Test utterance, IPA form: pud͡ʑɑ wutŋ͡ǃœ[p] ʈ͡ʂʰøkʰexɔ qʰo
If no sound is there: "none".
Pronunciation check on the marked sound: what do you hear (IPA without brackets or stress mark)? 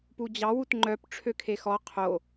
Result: p